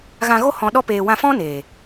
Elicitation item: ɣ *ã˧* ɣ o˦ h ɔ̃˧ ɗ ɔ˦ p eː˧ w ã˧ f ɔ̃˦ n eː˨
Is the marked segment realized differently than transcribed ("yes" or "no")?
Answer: no